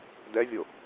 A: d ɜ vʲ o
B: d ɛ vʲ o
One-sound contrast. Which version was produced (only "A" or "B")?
B